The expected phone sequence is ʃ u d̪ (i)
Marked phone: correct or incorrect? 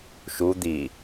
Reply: correct